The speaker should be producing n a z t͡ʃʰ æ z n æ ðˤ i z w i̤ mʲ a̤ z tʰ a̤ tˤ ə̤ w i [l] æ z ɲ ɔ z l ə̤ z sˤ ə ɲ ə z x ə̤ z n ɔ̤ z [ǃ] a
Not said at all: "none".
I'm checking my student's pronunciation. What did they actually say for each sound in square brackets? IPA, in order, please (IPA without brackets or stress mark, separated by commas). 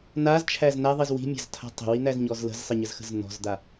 n̪, d̪